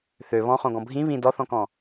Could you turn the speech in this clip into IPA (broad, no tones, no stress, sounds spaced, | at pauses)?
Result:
θ ø β ɔ̃ χ õ ɡ ɔ̃ bʱ ĩ β ĩ d ɔ θ ɔ̃ k ɔ̃